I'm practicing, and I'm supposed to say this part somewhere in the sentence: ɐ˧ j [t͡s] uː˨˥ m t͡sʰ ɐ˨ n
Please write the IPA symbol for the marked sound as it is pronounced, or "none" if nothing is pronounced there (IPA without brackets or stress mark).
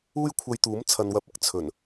t̪